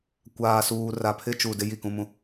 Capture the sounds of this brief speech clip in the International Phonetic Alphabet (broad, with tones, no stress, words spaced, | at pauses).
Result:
kʷaː˨suː˨ ra˨pʰɪ˦t͡ʃu˨ dɪ˦ji˦˨kũ˦ mũ˦